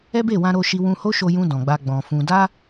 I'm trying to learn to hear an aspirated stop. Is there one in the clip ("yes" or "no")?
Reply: no